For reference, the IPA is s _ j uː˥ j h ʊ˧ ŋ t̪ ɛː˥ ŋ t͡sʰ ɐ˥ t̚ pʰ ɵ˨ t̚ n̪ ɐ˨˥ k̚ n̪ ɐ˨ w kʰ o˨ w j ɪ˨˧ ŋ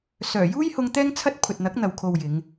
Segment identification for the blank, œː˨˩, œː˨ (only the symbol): œː˨˩